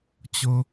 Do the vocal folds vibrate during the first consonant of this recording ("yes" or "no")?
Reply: no